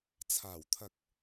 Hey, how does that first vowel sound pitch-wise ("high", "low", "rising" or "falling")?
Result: low